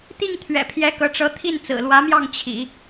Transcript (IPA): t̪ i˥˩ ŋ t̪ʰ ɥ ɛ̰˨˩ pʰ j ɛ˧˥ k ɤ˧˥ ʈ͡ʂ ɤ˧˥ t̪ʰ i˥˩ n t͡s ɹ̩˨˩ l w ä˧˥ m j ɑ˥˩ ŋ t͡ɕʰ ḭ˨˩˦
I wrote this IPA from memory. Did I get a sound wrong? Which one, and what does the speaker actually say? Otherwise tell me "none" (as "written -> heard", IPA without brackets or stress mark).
none